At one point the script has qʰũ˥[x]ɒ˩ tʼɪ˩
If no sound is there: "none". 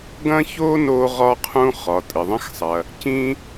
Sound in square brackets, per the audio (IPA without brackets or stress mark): χ